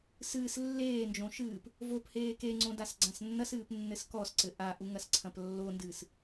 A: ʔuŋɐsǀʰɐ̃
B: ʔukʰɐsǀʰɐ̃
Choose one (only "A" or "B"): A